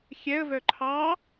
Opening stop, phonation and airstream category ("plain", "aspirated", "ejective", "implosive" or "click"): click